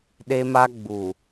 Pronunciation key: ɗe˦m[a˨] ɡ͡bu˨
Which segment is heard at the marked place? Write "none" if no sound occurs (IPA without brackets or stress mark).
a˦